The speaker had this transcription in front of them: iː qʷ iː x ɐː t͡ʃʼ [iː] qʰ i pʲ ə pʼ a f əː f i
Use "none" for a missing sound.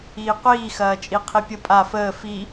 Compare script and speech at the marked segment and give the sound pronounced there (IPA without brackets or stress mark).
i